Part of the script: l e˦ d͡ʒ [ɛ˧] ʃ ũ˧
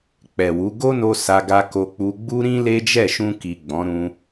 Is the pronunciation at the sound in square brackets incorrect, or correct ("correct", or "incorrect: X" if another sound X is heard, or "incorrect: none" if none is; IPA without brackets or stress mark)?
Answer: incorrect: ɛ˦˨